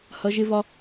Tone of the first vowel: rising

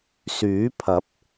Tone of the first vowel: rising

